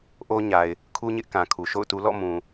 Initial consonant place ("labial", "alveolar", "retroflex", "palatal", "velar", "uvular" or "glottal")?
glottal